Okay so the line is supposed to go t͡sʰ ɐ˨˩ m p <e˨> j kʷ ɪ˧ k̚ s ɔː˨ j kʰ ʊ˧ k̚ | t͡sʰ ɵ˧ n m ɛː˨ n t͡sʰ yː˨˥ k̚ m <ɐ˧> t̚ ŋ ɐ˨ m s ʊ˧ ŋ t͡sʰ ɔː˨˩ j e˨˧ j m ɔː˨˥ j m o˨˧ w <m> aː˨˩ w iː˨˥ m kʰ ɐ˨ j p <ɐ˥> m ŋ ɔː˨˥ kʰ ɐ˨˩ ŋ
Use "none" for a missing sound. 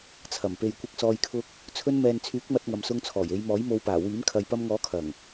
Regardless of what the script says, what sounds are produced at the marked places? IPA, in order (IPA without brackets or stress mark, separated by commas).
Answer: e˨, ɐ˧, p, ɐ˧